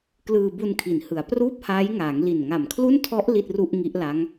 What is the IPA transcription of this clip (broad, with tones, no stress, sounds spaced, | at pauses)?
k l ɯː˧ b u˧ n kʰ i˩˦ n h ɯ˩˦ a̯ p r uː˥˩ p̚ h aː˦˥ j ŋ aː˩˦ ŋ l i˨˩ n ŋ a˨˩ m kʰ l u˥˩ n tʰ ɔ˦˥ ʔ l i˥˩ t̚ r u˥˩ ʔ ŋ i˦˥ ʔ l a˦˥ ŋ